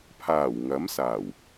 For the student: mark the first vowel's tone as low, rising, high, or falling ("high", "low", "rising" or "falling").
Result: low